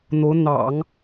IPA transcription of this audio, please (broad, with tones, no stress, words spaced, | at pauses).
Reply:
n̪o˧˥ʊ̯n̪ɑ̰˨˩˦ŋ